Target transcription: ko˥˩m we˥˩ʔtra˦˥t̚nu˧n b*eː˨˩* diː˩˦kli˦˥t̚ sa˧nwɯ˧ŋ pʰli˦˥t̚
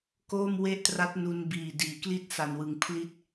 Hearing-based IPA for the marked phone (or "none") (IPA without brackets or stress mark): iː˨˩